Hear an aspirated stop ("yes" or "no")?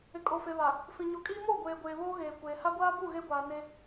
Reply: no